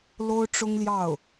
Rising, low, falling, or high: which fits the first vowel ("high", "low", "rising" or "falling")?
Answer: high